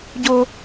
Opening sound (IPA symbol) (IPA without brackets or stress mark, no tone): ɟ